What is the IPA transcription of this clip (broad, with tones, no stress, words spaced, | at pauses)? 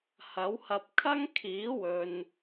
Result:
hɐ˨˥whɐ˧p̚ kʰɐ˥ŋkʰiː˨˥wɵ˨n